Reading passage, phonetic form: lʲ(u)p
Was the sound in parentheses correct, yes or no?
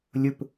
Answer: no